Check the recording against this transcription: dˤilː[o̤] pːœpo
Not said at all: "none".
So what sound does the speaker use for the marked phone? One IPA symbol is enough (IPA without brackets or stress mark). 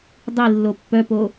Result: o